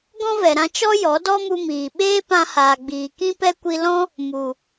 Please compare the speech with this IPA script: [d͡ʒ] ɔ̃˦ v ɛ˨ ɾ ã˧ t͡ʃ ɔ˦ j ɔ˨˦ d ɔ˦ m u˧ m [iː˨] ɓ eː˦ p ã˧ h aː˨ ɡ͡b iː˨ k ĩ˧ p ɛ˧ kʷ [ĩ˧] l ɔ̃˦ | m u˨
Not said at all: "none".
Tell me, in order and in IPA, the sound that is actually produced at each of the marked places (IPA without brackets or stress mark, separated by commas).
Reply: ɡ, iː˨, i˧